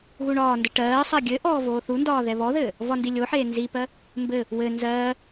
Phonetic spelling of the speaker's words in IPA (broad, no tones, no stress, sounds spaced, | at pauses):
ɣ u ɳ ɒː n d ɘ ʈ ɜː sˤ ɜ ɡʲ ɘ ʔ ɔː v oː θ u n d ɒː ð ɛ β ɔ ð ɘː | v ɒ n d i lʲ o ħ eː n z i p ɜ | m b ɘ | w ɘ n z ɜː